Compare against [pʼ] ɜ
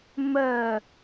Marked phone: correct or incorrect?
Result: incorrect